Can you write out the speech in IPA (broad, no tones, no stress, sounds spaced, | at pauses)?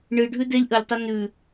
ɳ ɨ ɖʱ ʉ d e lʲ ʔ ə lʲ tˤ ɛ n ʉ